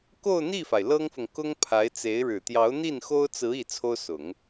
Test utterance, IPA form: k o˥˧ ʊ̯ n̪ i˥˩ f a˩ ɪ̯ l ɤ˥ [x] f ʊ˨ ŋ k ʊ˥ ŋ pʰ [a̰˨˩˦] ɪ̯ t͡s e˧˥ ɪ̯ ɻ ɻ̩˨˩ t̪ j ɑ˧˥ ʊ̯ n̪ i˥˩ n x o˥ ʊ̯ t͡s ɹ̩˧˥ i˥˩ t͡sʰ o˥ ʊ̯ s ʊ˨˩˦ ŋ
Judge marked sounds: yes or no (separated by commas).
no, no